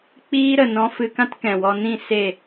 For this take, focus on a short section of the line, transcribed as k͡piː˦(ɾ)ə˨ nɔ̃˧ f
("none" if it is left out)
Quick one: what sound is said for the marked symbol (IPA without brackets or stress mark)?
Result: ɾ